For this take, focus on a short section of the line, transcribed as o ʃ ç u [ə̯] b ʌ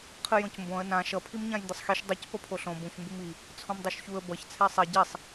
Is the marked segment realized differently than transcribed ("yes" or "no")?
no